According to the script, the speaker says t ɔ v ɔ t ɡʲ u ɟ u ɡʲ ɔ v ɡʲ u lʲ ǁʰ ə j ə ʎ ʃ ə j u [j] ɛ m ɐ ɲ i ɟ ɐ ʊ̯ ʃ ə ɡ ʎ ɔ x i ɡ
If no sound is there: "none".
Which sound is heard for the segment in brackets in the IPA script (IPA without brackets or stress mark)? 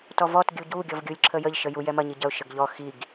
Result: j